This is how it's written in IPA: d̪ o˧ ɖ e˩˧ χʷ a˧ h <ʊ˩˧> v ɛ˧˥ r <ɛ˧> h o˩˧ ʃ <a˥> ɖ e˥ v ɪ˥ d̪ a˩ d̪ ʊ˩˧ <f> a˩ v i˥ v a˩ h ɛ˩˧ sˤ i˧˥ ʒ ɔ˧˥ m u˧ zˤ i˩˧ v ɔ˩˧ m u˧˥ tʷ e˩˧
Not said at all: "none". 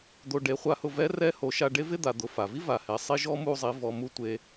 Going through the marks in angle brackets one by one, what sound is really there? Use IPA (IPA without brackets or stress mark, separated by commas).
ʊ˧, ɛ˧˥, a˧, f